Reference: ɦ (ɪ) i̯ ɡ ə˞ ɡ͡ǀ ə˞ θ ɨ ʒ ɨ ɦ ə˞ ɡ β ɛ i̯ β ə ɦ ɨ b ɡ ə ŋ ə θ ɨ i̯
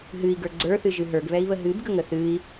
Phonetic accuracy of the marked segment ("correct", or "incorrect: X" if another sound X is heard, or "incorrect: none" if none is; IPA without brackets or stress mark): incorrect: ɨ